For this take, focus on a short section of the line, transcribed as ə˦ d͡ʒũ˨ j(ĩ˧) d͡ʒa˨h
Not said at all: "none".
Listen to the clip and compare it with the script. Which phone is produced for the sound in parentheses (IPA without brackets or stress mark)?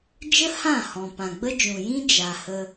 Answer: ĩ˦